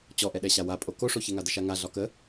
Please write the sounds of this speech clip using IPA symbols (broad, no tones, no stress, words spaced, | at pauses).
t͡ɕɔʔɛɗɛɕa wapʼo koʂoçɛŋa dəʃaŋa ɮɒkə